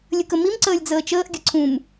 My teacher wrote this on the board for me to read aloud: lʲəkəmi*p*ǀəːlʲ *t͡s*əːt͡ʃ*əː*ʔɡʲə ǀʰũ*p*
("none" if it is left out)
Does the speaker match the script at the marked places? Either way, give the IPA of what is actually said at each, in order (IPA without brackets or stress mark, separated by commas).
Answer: m, d͡z, əː, m